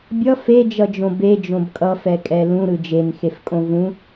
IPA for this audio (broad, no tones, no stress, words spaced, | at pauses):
bʲʌ fed͡ʒʌd͡ʒõ bed͡ʒõb kʼʌfɛkʼɛ lũɾɯ d͡ʒenxefkʼõ vũ